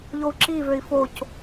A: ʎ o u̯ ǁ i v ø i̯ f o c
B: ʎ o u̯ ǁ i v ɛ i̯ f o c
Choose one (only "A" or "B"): A